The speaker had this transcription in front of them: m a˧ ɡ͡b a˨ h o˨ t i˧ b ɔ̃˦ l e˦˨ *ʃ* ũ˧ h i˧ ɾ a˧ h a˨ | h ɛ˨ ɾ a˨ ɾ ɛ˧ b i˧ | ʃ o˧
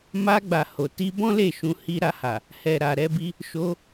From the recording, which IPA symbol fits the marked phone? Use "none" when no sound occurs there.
ʃ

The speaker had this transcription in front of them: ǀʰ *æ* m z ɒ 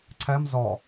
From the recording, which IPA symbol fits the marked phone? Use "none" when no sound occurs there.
æ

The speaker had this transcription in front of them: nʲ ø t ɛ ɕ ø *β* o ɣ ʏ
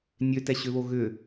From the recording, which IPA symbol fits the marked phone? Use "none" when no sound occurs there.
β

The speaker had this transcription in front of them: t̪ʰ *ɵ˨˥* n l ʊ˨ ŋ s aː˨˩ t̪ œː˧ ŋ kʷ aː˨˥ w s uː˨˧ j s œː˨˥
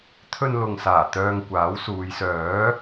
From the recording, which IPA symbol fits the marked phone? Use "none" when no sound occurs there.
ɵ˧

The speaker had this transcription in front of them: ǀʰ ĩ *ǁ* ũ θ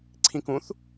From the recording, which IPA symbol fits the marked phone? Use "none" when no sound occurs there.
k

